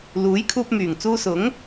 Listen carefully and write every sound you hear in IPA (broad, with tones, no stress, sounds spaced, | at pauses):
l uː˨˥ j kʰ uː˧ p̚ m yː˨˩ ŋ t͡s uː˧ s ʊ˨˥ ŋ